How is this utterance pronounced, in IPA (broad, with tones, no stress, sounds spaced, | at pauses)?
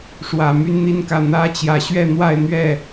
ʂ w ä˨˩ m y˥˧ n n̪ i˥˧ n k ä˥˩ n̪ ä˥ t͡ɕ j ä˧˥ ɕ ɥ ɛ˥˧ n̪ w a˥˧ ɪ̯ n̪ ɥ ɛ˥˩